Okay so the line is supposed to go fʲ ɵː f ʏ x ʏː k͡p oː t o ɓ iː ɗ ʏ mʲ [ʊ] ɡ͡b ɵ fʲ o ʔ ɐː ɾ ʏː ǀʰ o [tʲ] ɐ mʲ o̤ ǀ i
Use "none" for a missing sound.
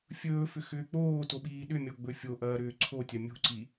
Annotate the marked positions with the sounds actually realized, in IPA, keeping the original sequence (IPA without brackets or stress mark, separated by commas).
ɔ, tʲ